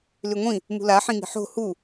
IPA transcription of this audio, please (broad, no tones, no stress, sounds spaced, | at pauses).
l y ŋʷ ĩ | m ṳ l a ħ ĩ ŋ i̤ ħ o̤ h u